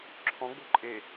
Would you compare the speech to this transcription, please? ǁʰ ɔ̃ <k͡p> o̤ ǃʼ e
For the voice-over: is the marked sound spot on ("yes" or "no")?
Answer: no